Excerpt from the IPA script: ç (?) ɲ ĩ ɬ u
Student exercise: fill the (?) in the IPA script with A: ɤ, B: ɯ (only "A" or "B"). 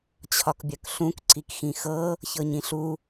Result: A